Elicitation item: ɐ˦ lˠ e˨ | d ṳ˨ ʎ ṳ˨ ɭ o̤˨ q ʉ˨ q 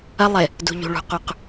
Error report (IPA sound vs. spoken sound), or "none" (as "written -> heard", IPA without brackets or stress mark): o̤˨ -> ṳ˨